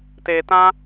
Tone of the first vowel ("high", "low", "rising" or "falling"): low